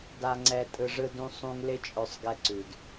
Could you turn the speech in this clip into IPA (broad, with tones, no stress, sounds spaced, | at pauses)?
d a˧ ŋ͡ǀ ɛ˧ tʼ ɯ˧ ʐ ɯ˦ d ũ˦ sˤ ũ˦ ŋ l ɪ˦ t͡ʃʼ œ˧ sˤ ɡ ɛ˧ ǀ ʉ˨ d